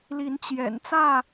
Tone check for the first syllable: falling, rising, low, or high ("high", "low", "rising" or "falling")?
rising